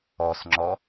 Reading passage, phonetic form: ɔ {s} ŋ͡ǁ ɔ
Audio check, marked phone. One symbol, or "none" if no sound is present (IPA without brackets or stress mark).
s